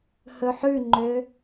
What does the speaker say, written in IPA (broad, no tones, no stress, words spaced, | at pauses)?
hɵħʉŋ͡ǃø